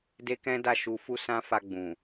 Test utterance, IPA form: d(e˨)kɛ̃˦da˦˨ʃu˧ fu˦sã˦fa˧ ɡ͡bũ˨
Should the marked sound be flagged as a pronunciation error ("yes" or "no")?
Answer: yes